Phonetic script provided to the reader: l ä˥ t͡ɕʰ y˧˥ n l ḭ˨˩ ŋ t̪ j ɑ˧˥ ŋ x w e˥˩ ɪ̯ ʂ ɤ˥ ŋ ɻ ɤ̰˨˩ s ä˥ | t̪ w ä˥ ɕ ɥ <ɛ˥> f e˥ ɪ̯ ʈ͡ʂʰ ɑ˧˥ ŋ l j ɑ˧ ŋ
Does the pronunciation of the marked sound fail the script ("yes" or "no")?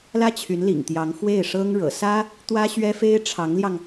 no